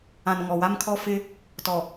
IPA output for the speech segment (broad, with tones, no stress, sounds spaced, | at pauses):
ã˨ n ŋ ɔ˨ w a˦ m kʰ ɔ˦ f ɪ˦ | t ɔ˨